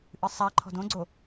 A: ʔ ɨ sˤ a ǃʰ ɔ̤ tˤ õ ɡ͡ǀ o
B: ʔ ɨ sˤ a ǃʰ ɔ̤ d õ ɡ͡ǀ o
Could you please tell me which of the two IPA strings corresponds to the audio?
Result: B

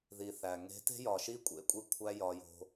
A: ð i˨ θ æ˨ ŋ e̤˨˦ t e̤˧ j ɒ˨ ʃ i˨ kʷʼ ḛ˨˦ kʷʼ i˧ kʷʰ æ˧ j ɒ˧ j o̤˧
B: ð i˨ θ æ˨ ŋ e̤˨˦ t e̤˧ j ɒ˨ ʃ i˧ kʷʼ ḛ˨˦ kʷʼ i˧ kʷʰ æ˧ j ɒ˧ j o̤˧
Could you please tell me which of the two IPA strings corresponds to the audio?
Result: B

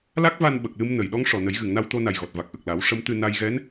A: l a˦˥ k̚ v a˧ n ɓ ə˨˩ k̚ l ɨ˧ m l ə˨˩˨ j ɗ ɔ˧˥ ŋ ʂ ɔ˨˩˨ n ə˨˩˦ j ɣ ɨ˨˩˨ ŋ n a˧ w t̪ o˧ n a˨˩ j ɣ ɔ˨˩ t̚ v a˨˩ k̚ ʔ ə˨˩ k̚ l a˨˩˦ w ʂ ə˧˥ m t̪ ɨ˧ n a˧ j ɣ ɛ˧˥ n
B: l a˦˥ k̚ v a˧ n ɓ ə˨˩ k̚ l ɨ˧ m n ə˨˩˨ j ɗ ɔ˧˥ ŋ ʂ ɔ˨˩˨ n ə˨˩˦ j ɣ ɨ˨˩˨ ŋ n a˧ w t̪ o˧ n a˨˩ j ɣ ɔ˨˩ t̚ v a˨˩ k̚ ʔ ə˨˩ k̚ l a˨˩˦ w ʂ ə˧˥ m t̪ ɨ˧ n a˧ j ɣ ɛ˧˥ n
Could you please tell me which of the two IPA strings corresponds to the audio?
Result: B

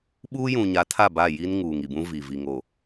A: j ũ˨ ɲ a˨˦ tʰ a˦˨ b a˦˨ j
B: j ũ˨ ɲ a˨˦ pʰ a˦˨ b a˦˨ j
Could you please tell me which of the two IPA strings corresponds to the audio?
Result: A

